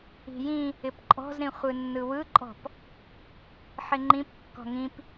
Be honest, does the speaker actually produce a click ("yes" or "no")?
yes